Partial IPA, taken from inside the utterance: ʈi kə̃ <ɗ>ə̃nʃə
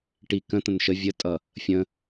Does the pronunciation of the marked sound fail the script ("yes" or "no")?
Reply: yes